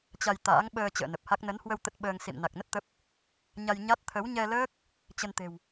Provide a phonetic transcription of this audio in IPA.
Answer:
t͡ɕa˧jt̪a̰ː˧˥ŋ ɓəː˧ t͡ɕə̰ː˧˨nə˨˩p̚ha˦˥k̚ nə˨˦nhwə˧w t̪ə˦˥t̚ɓəː˧ŋ sḭ˧˨m na˨˩k̚nə˦˥t̚ t̪ə˦˥p̚ | ɲa˧jɲa˦˥t̚ t̪ʰə˨˦wɲɛ˧ləː˦˥k̚ | t͡ɕə˧nt̪e̤˨˩w

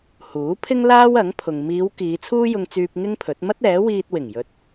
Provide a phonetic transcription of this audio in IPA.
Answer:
huː˨˥pʰɪ˥ŋ laː˥wɐ˨˥ŋpʰʊ˨ŋ miː˨˧w kiː˨˧ t͡sʰuː˥jʊ˧ŋt͡syː˧p̚ ŋɪ˥ŋpʰɵ˨˥t̚ mɐ˥t̚ɛː˨˥wiː˧t̚ wɪ˨˩ŋjɵ˨t̚

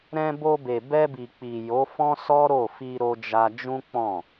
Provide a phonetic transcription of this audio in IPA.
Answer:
ɾɛ̃˧ bo˧be˨ bɛ˧bi˨k͡pi˨ jo˨˦fɔ̃˦sɔ˦ɾo˦˨ fi˧ ɾo˧d͡ʒa˧ d͡ʒũ˦k͡pɔ̃˦˨

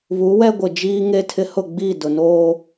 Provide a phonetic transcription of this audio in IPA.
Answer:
βu˨˦wɛ˦ɡʷɪ˨ d͡ʒiː˦ŋe˦tʰɪ˦ hʊ˦˨ɡ͡biː˦˨dʊ˨noː˦

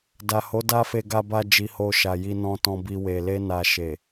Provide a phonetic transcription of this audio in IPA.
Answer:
da˨ho˨˦ da˧fe˨ ɡa˨ba˨ d͡ʒi˧ho˧ʃa˨ ji˧nɔ̃˧tɔ̃˧ bi˧we˨ le˧na˨ ʃe˨

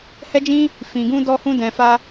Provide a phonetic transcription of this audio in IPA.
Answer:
hɛ˦d͡ʒĩ˦ | fĩ˧ɡũ˦ dɔ˦hũ˦dɛ̃˧ fa˧

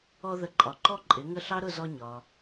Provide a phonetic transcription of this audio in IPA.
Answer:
ɔ˧ðə˩˥ǃʼɒ˩ ǃɔ˥˩ǃʼɪ˩˥ŋə˥˩ɬɑ˥ ɾʊ˥˩zɔ˧ ɲɒ˩

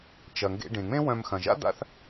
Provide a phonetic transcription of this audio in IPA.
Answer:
t͡ʃɐ˩ŋɡḛ˧ ɖẽ˩ŋ͡mẽ˥ wœ̃˧m xɐ̃˩ʒa̰˥ d̪a̰˥θ

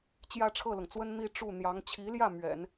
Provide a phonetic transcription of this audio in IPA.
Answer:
t͡ɕjä˥˧ʈ͡ʂʰɤ˥˩lʊ˩ŋt͡swə˥n n̪i˥˧ʈ͡ʂu˥˩n̪jɑ˧˥ŋ t͡ɕʰi˧˥ljä˥˩ mɥɛ̰˨˩˦n

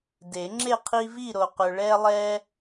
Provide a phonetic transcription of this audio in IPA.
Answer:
de˨˩˦ŋ͡ǁe˥˨ qʰi˦vi˥˨ɾo˨qɵ˨ ɭɛ˦lˠɛ˦

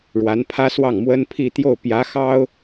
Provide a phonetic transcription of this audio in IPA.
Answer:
ɻwa˧˥npʰä˥swɑ˥˩ŋ mwə˥npʰi˥˧t̪jo˥˩ʊ̯ pjä˧˥xɑ˥ʊ̯

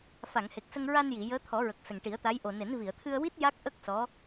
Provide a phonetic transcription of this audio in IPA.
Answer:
fa˨˩˨ŋhe˨˩k̚sə˧ŋ ɹa˧nji˨˩˨ jəː˧˥t̪ʰɔ˨˩˦ ɹə˨˩k̚sə˨˩ŋʈi˨˩˦ə̯t̪a˧˥j ʔo˨˩ ne˨˩˦n vi˨˩˨ə̯t̪ʰɨ˧ə̯wi˦˥t̚ ja˦˥k̚ʔə˦˥k̚ sɔ˧˥

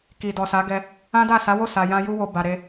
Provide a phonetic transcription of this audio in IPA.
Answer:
ki˨dɔ˨sa˨˦ɡɛ˧ | ã˦da˦˨ sa˨˦wo˦˨ sa˨jã˧ ju˧wo˨ ba˨ ɾe˧

